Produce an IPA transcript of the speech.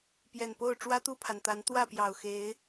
p j ɛ˨˩ n p o˥˨ ʊ̯ ʈ͡ʂ w ä˦ t̪ u˥˨ pʰ a˩ n t̪ a˨˦ n t̪ w ä˥˨ p j ɑ˨˩ ʊ̯ x e˨˦ ɪ̯

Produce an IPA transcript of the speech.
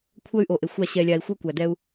kʷʰ œ˦ y̯ ʔ o˨ ʔ e˨ xʷ a˦˨ ɕ ɛ˨ lʲ a˨ i̯ xʷ ɤ˦ kʷ æ˨ d ɛ˦ u̯

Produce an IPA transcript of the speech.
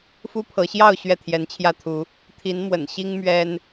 f u˦ pʰ ɤ˨˦ ɕ j ɑ˥˨ ʊ̯ ɕ ɥ ɛ˥˨ t̪ʰ j ɛ˨˦ n t͡ɕʰ j ä˦ t̪ʰ u˨˦ | t̪ʰ i˨˦ n m w ə̰˨˩ n ɕ i˦ ŋ m ɥ ɛ˦ n

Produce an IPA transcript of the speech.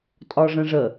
tʼ ɒ ʐ ə̃ ʐ ə

